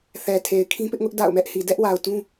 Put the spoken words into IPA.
θ ɛ˨ tʰ e˨ ɪ̯ kʰ ĩ˦ p ɪ˦ ʔ ŋ ʊ˦ ʔ d a̰˦˨ ʊ̯ m ɛ˦ ʔ h i˨ d ɛ˦ ʔ w a˨ ʊ̯ t ũ˦

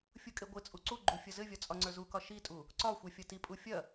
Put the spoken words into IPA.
fʲ u kʼ e ɡʷ ɘ t͡sʼ u ǀ u ɡ͡ǃ u fʲ ɐ z ɘ vʲ ɒ t͡sʼ ɒ ŋ͡ǀ ə˞ z u k ɒ ʃ i tʼ u | ǀ ɒ xʷ ɛ fʲ ɐ t i pʼ u fʲ ɐ

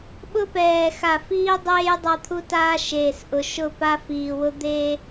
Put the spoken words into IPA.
ɓ ʊ˦ p ɛː˨ x a˨ f iː˦ dˤ eː˦ j dˤ a˦ t̪ʰ u˦ t aː˦ ʃ eː˨ s ʔ ʊ˨ ʃ ʊ˦˨ p a˦ f iː˨ w ʊ˦ d̪ e˦

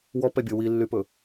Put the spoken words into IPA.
w ɔ p ɛ bʲ o w i lː y p ɵ

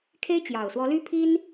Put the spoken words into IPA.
kʰ e˥ ɪ̯ t͡ɕ j ɑ˨˩ ʊ̯ s w ɔ˧˥ l y˥ pʰ i˥ n

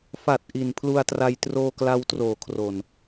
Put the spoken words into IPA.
f a˨˩ t̚ ʔ i˨˩ n pʰ l u˧ a̯ t r a˧ j t r oː˧ k l a˧ w t r oː˨˩ kʰ r o˨˩ n

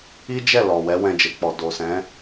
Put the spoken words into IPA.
i˦ d͡ʒ ɛ˦˨ l ɔ˨ w ɛ˨˦ w ɛ̃˧ d͡ʒ e˨ k͡p ɔ˨ d o˨ s ɛ̃˨˦

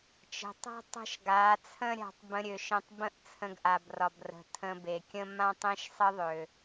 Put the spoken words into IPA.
t͡ʃ ə̤˨ tˤ a̤˦ tˤ ə̤˦ ʃ ɡ a˨˦ t͡sʰ ə̃˦ ɾʲ a̤˧ tˤ b ə̃˧ ɾʲ ø˨ ʃ ə̃˧ tˤ b ə̃˦ ʔ t͡sʰ ə̃˧ ɡ ʔ a˨ b r ɒ˨ b r ə̤˨ tʰ ə̃˧ b e˨ kʲ ə̃˦ m ã˦ tˤ ẽ˦ ʃ sˤ ə˦ ðˤ ø˨

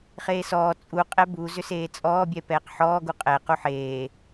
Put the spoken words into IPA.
χ eː s ɔː t͡sʼ u qʼ ɛ b u z ʏ s eː t͡sʼ ɔː bʲ ɛ p ɛː q ħ ɔː ɡ u qʼ ɛ q u ħ eː

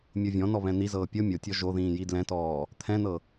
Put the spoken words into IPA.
mʲ o vʲ ɔ̃ n ɔ β ɛ̃ n̪ i z ɤː pʲ ɤ mʲ o tʲ ɔ ʒ o ð ĩː j i d l ɛ̃ t ɔː | t̪ʰ ɛ̃ n ɤ

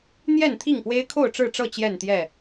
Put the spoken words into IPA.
n̪ j ɛ˥˨ n t̪ʰ i˥˨ ŋ p w e˦ ɪ̯ kʰ o˥˨ ʊ̯ ʈ͡ʂ ɻ̩˥˨ ʈ͡ʂ ɤ˥˨ t͡ɕ j ɛ˥˨ n t̪ j ɛ˥˨

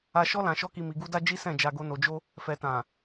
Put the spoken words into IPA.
a˧ ʃ ɔ˦ l ã˧ ʃ ɔ˦ k i˧ m i˨ ɡ u˧ d a˧ d͡ʒ i˦ s ɛ̃˦˨ d͡ʒ a˧ ɡ o˧ n o˨ d͡ʒ o˧ | f ɛ˨ t ã˨

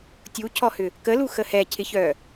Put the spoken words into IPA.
tʲ u cʰ ɔ h ʏ | k ə l u x ə h ɛ cʰ ɪ ç œː

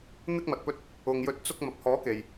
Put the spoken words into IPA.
n̪ ɪ˧ k̚ m ɐ˨ t̚ p ɵ˧ t̚ | ʊ˨ ŋ j ɵ˨˥ t̚ t͡s ʊ˧ k̚ m ɐ˨ p̚ h ɔː˨˥ k e˨ j

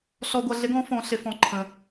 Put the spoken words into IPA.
ɬ ɔ˧ ɡʷ ʌ˧ ɮ ɪ˧˥ ɡ ɔ̃˧˥ f ɔ̃˧˥ ɬ ɪ˧˥ f ɔ̃˧˥ ǃʰ ə̃˧

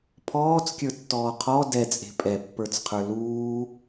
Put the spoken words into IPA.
pʰ ɔː t͡s kʲ ə˞ tː ɔː qʰ ɔ d ɛ t͡sʼ e̤ pʼ ɛ pː ə˞ t͡s qʰ ə˞ l uː

